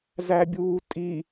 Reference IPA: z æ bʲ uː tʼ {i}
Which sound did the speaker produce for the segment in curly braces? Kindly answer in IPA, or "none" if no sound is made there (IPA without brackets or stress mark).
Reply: i